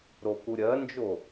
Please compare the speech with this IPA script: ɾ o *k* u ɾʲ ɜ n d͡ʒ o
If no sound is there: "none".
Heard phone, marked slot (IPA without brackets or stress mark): k